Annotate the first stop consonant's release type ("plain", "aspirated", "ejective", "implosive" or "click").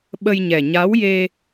implosive